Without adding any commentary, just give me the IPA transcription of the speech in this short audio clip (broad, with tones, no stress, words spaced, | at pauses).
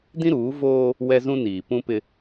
dĩ˦ɾuː˨˦ voː˦ | wɛ˦zũ˦niː˨ pũ˦pɪ˦